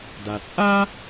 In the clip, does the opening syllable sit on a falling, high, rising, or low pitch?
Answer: low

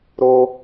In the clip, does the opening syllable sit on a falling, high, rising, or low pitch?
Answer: high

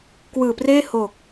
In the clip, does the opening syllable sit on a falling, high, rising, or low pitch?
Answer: low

